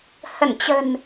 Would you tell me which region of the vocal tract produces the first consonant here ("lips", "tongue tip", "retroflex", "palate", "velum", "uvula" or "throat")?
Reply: throat